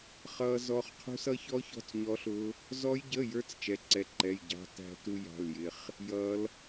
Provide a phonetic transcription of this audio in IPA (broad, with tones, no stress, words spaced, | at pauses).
χʌ˦˥zɔ˦˥χ qʰṳ˦˥sʌ˦˥çɔ˦˥çɔ̤˧˥˧t͡s ɲɔ˦˥ɬʊ˦˥ | zɔ˦˥jɟə˧˥˧jə˞˦˥t͡s t͡ʃɛ˧˥˧ǀɛ˧˥˧ǃɛ˧˥˧j ɟɑ̤˦˥tæ̤˦˥tu˦˥ jɑ̤˧˥˧ljɪ˧˥˧χ | jʌ˦˥l